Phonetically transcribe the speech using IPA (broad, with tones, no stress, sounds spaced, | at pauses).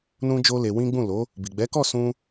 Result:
n ũ˦ d͡ʒ o˦ l e˧ w ĩ˦ ɡ͡b ũ˦˨ l o˨˦ | b i˨ ɡ͡b ɛ˨˦ k ɔ˦˨ s ũ˧